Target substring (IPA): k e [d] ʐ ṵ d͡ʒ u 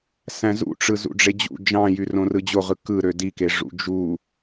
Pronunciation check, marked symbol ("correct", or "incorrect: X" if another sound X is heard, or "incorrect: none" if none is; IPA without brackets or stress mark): incorrect: none